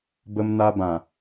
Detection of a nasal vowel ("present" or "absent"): present